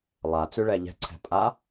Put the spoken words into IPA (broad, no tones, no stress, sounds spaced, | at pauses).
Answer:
lˠ a t͡s ʉ ɭ ɛ ʎ ɛ̤ ǀʰ ɛ̤ pʼ a